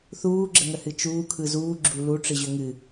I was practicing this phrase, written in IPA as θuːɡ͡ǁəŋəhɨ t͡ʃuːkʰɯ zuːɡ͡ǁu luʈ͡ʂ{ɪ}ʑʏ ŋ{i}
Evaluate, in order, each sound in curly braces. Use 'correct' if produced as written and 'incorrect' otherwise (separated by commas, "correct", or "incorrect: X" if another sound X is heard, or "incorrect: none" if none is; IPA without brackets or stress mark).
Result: incorrect: ɨ, incorrect: ɨ